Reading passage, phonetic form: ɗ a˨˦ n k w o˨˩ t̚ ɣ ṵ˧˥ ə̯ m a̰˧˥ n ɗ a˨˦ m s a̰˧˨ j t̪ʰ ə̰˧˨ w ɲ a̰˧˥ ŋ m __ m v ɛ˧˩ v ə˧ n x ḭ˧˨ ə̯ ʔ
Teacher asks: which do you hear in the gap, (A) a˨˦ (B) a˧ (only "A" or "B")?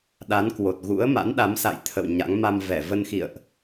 B